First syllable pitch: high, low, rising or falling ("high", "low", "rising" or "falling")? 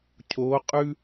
rising